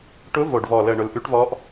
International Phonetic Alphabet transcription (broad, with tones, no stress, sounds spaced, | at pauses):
ʈ ʊ˧˥ v o˨˩ ɖ v ɔ˨˩ l ə˨˩ ɳ ʊ˨˩ l ʔ ʉ˧˥ ʈ v ɔ˧˥ ʔ